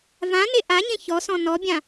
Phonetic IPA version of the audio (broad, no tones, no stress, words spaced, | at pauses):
vãne ʔaɲẽ çɔsɔ̃ nɔbʲã